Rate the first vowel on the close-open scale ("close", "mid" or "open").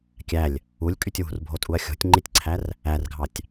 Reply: open